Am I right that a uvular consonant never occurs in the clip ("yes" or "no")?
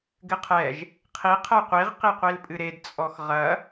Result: no